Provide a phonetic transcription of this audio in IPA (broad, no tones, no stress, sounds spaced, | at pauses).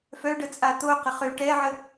f œ ɖ ə t͡sʼ a t̪ o q ə χ ø ʈ ɛ ʕ ə